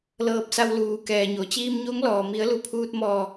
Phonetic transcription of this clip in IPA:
l ɤː˧ p̚ s a˧ w l uː˩ k ɛː˩ ɲ o˩ t͡ɕ iː˧ m ɲ o˧˥ ŋ l ɔː˩ m i˩˧ ə̯ l u˩˧ pʰ uː˧ t̚ m ɔː˧˩

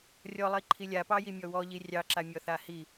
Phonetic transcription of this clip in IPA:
rʲ ɔ lˠ i ǃʰ i lʲ a p ɑ j i mʲ ɔ w ɔ ʎ i rʲ ɑ ǁ a mʲ ɔ θ a h i

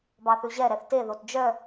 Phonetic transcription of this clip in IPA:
b ɑ θ ʉ ʑ ɛ ɾ ɛ θ t e ð o t d͡ʒ œ

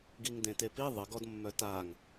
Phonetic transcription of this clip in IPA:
ɡ i ŋ d ẽ t e p i ðˤ ə ɡ ɔ d mː œ t a ŋ

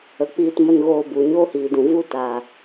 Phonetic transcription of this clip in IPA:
ə˨ k͡p iː˧ t m ə˧ n ɣ oː˧ b u˨ ɲ oː˦ h iː˨ d ũ˨ v u˦ t a˨

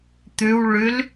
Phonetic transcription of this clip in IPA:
t̪ ʉ w ɭ ʉ l

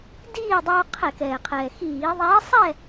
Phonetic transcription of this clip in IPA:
d iː˥˨ dˤ oː˧ qʰ ɛ˧˩˧ k ɛː˩ qʰ ɛː˩ x iː˧˩˧ ðˤ ɛː˧˥ sˤ ɛ˥˨

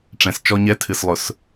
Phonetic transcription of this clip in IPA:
ʈ͡ʂ ɛ̃˨ s t͡ʃ ɔ˦ ɲ ɛ˦ tʰ ɨ˨ s lˠ ʊ˨ s

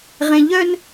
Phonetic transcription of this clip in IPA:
ʁ ẽ˦ ʎ œ˦ n

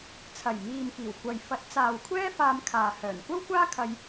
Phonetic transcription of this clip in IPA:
t͡sʰ ɐ˨˩ j m iː˨ m k iː˨˩ w kʷ ɐ˨ j f ɐ˨˥ t̚ t͡s aː˨ w kʷʰ ɛː˥ f aː˧ m kʰ aː˨ h œː˨˩ n kʷ ɐ˥ w kʷ aː˥ kʰ ɐ˧ j

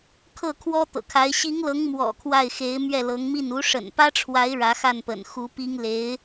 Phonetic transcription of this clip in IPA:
kʰ ɤ˥˩ kʰ w ɔ˥ t̪ ɤ̰˨˩ kʰ a˧˥ ɪ̯ ɕ i˧˥ ŋ l ɤ˧˥ ŋ m w ɔ̰˨˩ kʰ w a˥˩ ɪ̯ x e˧˥ ɪ̯ m ɥ ɛ˥˩ l ɤ˧˥ ŋ m i˥˩ n u˧˥ ʂ ə̰˨˩ n p ä˥ ʈ͡ʂʰ w a˧˥ ɪ̯ ɻ ä˧˥ x a˥˩ n p ə̰˨˩ n x u˧˥ p i˥ ŋ l e˧˥ ɪ̯

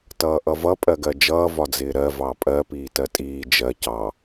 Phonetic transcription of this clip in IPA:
t ʌː ʔ ʌ v ʌ pʼ ɜ ɡ ɜ d͡ʒ ʌː v ɒ d͡z ɪː ɾ ɜ v ɑ pʼ ɜ p iː t ɜ tʼ iː d͡ʒ ɜ c ɑ

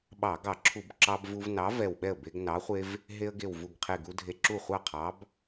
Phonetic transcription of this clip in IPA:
ɓ ɑ˧˩˧ ɡ ɑ˧˩˧ ǁʰ u˧˩˧ b ǁ ɑ˦ b v u˦ v n ɑ˨˥ v ɛ˧˩ w ɓ ɛ˥˩ ə̯ b e˦ ɡ n ɑ˨˥ χʷ e˦ v | ɦ e˦ ə̯ ɡ e˧˩ w v u˧˩ ɡ qʰ e˧˩ ɡ u˦ dʱ e˧˩ ǁ u˥˩ χʷ ɑ˥˩ qʰ ɑ˨˥ b

